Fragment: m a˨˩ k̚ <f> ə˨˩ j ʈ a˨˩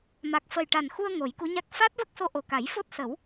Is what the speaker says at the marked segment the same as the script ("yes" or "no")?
yes